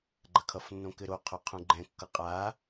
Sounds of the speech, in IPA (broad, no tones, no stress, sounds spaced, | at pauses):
ɡ͡ǃ ɐ kʰ ʌ f nː õ k ɘ ɾ o qʰ o qʰ ũ ɡ͡ǃ ɛ̃ kː ʌ qʼ a